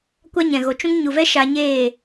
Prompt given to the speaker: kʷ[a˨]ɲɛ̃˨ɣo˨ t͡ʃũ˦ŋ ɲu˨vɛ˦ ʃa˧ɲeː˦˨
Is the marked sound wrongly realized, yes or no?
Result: yes